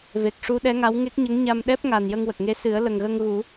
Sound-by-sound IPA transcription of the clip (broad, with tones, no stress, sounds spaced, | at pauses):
v e˨˩ k̚ ʂ u˧˥ ɗ ɛ˧˥ ŋ a˧˥ w ŋ e˦˥ k̚ ɲ ə˧˥ ŋ ɲ a˧ m ɗ ɛ˦˥ p̚ ŋ a˨˩ n j ə˧ ŋ w ə˨˩ k̚ ŋ e˧˥ s ɨ˨˩˦ ə̯ l ə˨˩ ŋ ɣ ə˧ ŋ ɣ u˨˩˦